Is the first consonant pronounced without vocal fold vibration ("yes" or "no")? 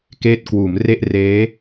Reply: yes